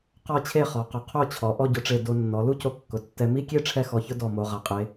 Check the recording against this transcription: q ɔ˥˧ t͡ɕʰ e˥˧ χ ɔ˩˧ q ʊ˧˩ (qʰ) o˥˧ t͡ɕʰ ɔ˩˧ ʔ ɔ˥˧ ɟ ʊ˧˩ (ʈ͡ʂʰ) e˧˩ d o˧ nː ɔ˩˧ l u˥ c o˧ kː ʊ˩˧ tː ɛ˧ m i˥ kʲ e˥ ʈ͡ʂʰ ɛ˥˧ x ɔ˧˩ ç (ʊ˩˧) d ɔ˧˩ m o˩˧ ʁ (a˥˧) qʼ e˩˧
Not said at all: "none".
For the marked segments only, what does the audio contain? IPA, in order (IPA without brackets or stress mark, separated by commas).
qʰ, ʈ͡ʂ, ʊ˥, a˩˧